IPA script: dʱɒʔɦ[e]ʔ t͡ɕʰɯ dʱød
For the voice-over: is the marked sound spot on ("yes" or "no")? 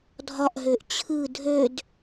no